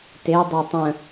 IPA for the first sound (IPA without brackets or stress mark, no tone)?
t